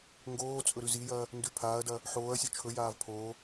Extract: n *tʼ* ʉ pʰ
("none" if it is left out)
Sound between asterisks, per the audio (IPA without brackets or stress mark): d